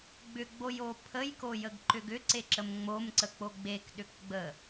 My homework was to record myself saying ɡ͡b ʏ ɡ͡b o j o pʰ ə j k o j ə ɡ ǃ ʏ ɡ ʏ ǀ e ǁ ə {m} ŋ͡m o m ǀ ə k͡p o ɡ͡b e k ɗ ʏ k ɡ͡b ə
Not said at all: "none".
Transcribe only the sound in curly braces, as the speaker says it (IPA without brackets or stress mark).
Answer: m